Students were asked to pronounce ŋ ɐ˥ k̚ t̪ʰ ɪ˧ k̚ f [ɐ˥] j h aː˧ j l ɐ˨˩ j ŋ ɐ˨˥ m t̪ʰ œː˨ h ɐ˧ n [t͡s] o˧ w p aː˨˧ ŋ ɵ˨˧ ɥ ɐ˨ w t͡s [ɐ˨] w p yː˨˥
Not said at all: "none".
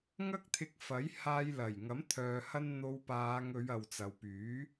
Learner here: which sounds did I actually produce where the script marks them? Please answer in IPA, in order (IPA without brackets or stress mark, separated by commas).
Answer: ɐ˨˥, n̪, ɐ˨